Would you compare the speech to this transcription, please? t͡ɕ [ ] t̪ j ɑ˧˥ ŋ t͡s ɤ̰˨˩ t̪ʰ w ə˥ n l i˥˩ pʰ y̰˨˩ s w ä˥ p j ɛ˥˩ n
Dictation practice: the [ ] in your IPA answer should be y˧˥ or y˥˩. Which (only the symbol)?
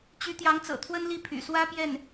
y˧˥